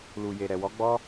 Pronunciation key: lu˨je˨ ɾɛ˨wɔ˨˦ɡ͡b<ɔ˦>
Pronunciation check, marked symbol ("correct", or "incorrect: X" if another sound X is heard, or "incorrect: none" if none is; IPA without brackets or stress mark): correct